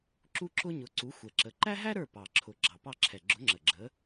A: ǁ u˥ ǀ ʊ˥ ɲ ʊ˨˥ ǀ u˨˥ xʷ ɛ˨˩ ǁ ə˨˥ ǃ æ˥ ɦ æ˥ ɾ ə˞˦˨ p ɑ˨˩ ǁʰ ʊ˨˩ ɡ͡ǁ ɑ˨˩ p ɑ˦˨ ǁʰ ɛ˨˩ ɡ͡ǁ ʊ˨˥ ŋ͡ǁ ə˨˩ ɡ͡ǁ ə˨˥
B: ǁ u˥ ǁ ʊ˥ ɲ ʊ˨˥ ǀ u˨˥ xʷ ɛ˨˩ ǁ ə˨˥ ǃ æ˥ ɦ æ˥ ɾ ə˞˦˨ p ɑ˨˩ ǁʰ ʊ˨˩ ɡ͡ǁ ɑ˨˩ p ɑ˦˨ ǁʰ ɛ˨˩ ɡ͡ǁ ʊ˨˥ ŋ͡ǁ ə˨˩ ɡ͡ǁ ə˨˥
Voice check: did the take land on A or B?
B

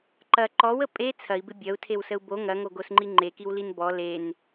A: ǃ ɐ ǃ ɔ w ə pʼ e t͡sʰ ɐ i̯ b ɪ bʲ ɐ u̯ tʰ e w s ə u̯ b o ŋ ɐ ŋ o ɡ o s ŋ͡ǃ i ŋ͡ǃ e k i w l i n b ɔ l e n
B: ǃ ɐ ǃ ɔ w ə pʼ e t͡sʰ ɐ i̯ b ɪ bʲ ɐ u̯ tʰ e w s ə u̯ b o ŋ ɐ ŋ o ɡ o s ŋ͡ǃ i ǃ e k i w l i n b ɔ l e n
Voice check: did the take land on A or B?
A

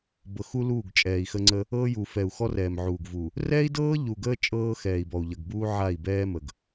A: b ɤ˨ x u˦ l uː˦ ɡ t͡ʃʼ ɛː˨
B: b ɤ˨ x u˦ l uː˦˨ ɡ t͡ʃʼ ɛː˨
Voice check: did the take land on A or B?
B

